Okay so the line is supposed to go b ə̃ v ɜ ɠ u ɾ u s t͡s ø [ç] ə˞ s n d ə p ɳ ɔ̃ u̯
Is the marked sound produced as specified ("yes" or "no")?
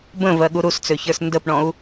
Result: yes